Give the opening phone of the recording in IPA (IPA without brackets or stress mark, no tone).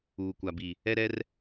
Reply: uː